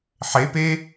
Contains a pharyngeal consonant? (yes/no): yes